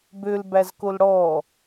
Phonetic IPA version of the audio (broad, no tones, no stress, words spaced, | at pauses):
bølbæzkol ɽɔ